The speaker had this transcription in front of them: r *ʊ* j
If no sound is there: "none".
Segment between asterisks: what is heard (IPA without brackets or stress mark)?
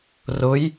ʊ